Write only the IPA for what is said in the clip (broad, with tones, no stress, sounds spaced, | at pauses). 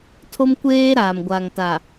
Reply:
tʰ o˦ m kʷ eː˦ ɾ aː˨ m ɡʷ a˨ ŋ t a˨